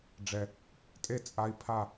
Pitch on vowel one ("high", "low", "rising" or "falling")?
low